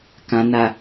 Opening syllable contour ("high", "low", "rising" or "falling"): low